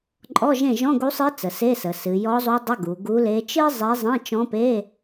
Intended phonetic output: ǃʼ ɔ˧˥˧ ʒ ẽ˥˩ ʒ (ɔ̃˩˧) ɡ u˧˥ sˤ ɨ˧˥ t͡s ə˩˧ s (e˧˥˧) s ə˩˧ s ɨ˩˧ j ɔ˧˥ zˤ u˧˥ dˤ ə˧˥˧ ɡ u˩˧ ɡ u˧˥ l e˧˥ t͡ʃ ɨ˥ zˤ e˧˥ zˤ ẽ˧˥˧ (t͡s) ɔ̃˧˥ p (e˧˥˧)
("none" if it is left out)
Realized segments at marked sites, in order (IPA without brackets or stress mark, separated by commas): ɔ̃˧˥˧, e˧˥˧, t͡ʃ, e˧˥˧